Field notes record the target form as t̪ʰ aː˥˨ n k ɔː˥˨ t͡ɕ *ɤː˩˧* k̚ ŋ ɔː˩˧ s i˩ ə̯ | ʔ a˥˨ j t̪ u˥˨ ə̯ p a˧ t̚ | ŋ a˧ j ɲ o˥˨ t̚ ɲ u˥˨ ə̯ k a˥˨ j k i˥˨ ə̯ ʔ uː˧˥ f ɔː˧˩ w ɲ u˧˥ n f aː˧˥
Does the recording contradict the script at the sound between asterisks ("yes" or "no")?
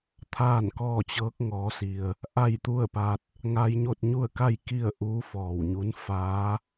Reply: yes